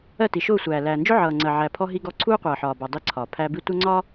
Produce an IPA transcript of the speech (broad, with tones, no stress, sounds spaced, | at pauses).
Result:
ɜ˦˨ t i˨ ʃ ʊː˦˨ sʷ æː˨ l æː˨ n d͡ʒ ʊ˦ ʕ ʌː˨ ŋ͡ǀ ɜ˨ ʕ æ˨ pʰ ɔ˦ ɦ i˦ ɡ ɔ˦ ǀʰ uː˦ qʷ ʌː˨ ħ ɒː˨ b ɔ˨ dˤ i˦ ǀʰ ɒː˨ pʰ æ˦ b i˦ tʷ ɜ˦ ŋ͡ǀ ɒː˦